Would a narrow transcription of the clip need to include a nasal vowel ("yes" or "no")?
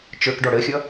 no